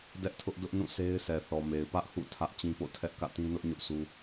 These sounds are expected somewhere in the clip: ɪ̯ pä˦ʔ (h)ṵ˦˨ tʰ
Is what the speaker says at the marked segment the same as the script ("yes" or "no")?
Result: yes